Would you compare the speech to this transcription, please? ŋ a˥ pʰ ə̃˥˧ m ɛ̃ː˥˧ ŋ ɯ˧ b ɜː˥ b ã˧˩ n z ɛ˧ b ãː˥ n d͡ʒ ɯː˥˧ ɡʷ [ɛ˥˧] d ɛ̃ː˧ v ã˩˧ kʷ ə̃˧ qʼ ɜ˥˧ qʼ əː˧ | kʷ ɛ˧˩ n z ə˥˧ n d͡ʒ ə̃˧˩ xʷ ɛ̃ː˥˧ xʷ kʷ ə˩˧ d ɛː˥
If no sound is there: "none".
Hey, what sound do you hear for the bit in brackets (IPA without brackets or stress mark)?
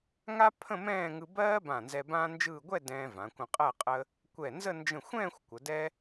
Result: ɛ˥˧